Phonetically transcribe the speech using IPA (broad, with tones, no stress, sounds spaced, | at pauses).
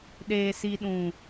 ɗ eː˨ s i˨ ɗ ũ˨